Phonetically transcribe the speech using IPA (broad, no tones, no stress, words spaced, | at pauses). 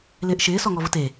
lɪːʔʃɪː sɔŋɔvʊte